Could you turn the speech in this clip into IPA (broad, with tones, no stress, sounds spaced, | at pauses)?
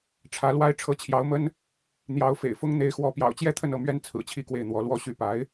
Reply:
ʈ͡ʂʰ ä˧˥ l w a˥ ɪ̯ ʈ͡ʂʰ ɤ˧˥ t͡ɕʰ j ɑ˧˥ ʊ̯ m ə˥ n | n̪ j ɑ˧˥ ʊ̯ f ḛ˨˩ ɪ̯ f ʊ˥ ŋ n̪ e˧˥ ɪ̯ x w ɔ˧˥ p j ɑ̰˨˩ ʊ̯ t͡ɕ j ɛ˥ t̪ʰ ə˥˧ n ɤ˥˩ m ɥ ɛ˥ n t͡sʰ ɹ̩˨˩ t͡ɕʰ i˥ k w e˥˩ ɪ̯ n̪ w ɔ˧˥ l w ɔ˥˧ ɕ y˥˩ p a˧˥ ɪ̯